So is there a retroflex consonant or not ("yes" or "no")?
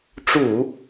yes